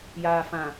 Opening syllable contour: low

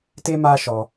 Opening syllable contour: high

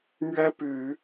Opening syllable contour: high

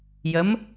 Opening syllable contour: rising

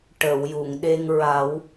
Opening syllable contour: low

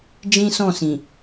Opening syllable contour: high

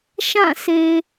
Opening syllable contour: falling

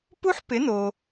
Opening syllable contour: high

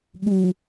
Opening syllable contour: low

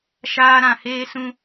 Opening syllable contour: high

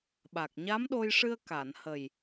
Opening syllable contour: low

